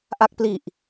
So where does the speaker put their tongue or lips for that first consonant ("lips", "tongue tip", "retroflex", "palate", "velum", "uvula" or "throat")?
throat